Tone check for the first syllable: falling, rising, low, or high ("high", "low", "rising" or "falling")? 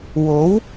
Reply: rising